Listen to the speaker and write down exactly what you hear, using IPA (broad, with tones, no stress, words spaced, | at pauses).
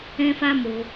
ɛ̃˦fa˦ mo˧